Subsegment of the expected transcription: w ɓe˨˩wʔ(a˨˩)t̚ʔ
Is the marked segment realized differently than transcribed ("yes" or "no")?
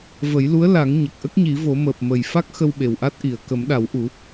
yes